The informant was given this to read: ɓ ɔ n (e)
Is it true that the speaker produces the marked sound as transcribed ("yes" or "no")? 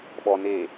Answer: yes